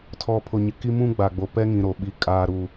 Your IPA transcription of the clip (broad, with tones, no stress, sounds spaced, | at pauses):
tʰ ɔ˨ pʰ ʊ˨ ɲ ɪ˨ k i˦ m ũ˦ ɡ͡b a˨ ɡ͡b o˨ p ɛ˦ ŋ ĩ˨ ɾ o˨ ɓ i˨ kʼ aː˨ ɾ u˨